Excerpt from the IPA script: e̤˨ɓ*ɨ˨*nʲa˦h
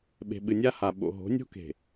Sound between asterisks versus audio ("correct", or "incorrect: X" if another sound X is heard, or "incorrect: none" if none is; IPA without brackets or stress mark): correct